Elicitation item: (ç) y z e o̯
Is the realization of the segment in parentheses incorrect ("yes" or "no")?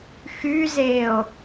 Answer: yes